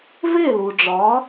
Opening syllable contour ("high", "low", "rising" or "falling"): falling